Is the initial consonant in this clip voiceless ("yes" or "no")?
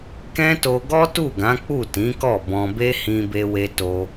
yes